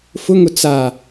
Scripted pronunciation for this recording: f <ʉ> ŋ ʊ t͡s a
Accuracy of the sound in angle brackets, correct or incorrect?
incorrect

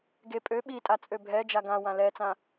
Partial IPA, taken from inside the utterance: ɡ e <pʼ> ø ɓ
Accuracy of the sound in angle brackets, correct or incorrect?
correct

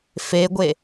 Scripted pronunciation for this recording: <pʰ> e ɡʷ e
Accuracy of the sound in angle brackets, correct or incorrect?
incorrect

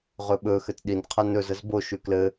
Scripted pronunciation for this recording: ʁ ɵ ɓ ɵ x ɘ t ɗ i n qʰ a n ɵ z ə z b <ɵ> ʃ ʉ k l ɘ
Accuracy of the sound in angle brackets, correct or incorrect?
incorrect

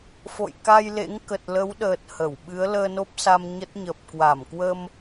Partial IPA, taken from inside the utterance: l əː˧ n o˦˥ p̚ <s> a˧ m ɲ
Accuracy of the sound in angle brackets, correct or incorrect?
correct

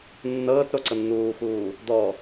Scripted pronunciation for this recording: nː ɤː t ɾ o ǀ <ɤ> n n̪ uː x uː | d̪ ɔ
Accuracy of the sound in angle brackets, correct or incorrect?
correct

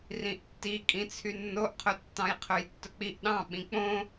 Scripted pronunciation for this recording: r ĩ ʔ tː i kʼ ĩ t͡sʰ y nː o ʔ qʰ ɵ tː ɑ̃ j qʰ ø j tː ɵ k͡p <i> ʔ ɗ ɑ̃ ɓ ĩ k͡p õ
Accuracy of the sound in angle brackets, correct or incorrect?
correct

